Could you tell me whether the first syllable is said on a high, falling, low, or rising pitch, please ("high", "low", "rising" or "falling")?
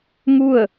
falling